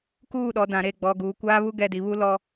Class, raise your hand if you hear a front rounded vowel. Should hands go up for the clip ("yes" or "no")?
no